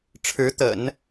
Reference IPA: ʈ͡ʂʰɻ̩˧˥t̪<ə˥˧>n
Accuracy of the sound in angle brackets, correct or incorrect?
incorrect